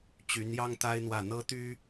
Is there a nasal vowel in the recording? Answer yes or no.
no